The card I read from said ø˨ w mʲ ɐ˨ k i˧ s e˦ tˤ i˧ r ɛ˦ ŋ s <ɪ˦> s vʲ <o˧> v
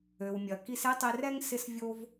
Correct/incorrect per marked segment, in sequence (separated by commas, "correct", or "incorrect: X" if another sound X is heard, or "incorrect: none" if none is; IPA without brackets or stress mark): correct, incorrect: o˦